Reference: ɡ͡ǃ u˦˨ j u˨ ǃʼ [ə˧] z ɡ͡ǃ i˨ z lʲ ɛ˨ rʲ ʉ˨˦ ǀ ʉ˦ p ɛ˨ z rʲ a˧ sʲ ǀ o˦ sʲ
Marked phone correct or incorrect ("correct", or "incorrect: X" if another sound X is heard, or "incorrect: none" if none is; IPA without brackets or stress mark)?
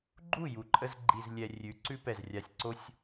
correct